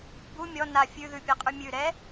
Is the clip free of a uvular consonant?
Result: no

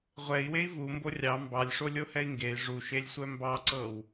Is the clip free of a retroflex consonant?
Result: no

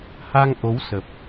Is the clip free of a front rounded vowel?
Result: yes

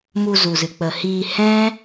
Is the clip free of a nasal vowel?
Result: no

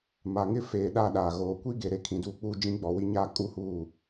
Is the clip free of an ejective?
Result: no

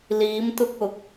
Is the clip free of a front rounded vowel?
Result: yes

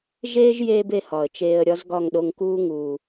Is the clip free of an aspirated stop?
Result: yes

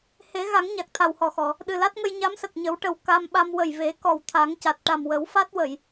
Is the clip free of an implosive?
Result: no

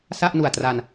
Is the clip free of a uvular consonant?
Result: yes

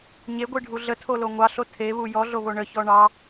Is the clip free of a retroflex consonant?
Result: no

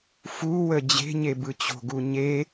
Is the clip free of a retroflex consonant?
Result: yes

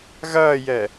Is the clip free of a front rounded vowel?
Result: yes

